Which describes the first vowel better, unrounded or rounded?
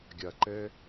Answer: unrounded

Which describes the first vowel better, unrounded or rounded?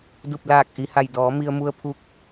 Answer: rounded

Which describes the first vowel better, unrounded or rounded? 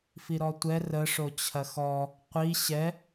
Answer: unrounded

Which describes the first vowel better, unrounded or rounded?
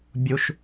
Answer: rounded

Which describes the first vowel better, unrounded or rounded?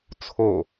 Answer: rounded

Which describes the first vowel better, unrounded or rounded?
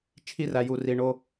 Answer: unrounded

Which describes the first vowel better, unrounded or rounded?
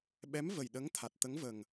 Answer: unrounded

